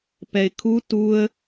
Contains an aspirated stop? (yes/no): yes